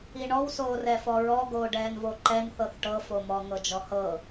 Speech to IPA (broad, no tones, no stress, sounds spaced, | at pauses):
i ɳ ɔ w s oː r ɛ f ɔ ɹ ɔ ɡ oː ɖ ɛː n v o ǃ ɛ n θ ɤ θ ʈ ɤ f o m ɔ ŋ ɤ d͡ʒ ɔ h ɤ